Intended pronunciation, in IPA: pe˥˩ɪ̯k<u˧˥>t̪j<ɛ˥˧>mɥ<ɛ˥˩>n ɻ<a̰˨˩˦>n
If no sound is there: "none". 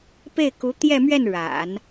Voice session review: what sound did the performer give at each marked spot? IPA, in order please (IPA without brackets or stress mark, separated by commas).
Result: u˧˥, ɛ˥˧, ɛ˥˩, a̰˨˩˦